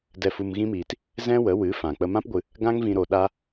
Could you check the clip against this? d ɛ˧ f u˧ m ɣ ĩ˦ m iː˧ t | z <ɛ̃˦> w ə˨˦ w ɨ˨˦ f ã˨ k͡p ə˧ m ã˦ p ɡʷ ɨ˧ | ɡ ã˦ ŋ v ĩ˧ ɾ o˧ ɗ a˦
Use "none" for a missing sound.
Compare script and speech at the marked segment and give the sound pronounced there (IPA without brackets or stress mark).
ɛ̃˦